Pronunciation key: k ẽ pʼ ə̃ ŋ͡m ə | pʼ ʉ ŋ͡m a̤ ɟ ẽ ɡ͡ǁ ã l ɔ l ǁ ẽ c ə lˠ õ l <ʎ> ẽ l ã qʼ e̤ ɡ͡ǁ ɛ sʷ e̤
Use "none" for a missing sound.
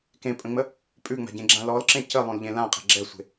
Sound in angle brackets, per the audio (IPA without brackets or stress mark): ʎ